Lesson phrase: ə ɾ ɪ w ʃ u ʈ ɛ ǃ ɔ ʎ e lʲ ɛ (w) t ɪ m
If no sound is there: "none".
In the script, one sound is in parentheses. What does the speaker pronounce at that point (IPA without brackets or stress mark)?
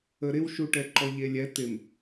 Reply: none